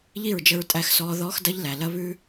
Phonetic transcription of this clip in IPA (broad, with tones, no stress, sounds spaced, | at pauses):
ʎ i˦˨ ɹ d͡ʒ ə˧ ɹ tʼ æ˧ x s ɔː˧ ð ɔː˦ x d ɐ˦ ʎ l æ˨ l ɐ˦ β ʉ˦